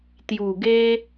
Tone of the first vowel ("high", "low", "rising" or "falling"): low